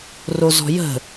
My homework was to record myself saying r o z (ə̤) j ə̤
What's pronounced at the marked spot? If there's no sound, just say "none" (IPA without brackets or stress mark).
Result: ɔ̤